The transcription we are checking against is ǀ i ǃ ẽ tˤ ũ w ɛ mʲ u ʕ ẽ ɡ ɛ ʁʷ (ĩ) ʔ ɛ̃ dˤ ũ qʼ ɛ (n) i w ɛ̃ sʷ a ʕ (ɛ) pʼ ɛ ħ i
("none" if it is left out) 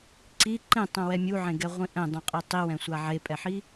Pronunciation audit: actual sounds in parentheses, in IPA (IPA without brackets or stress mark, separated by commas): ĩ, tˤ, e